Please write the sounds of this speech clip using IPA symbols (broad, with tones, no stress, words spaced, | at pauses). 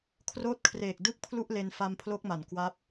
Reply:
kʰroː˦˥t̚kʰreː˨˩k̚ dɯ˥˩k̚pʰlu˥˩ʔle˧n fa˧mpʰlo˦˥k̚ma˩˦n kwa˦˥p̚